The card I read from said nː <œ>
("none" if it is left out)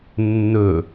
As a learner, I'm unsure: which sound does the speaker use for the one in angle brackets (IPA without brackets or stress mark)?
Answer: ɵ